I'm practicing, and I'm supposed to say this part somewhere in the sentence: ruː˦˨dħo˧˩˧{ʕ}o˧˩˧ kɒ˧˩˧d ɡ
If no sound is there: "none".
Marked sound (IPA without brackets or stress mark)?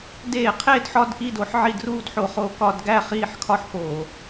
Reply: χ